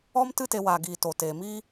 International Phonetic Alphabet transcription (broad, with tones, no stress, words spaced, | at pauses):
ɔ˦m tɨ˦te˧ waː˨ɡiː˨ to˨ teː˨mi˦